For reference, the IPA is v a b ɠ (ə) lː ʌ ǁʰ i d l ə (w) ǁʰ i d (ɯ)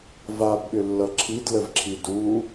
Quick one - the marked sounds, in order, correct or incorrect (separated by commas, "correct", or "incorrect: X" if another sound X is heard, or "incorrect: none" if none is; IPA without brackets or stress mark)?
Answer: incorrect: ʏ, incorrect: v, incorrect: u